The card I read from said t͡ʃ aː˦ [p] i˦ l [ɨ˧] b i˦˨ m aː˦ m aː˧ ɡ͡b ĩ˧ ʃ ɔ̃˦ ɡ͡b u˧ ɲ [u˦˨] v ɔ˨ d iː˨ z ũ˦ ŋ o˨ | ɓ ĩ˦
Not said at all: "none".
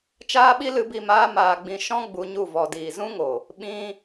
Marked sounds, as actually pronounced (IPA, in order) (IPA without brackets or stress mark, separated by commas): ɓ, ɨ˧, u˦˨